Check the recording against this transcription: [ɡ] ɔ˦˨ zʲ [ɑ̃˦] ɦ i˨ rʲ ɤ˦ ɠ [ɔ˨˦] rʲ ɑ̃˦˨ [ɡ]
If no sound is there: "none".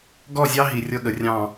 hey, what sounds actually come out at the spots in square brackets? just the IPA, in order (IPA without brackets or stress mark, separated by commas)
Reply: ɡ, ɑ˦, ə˨˦, none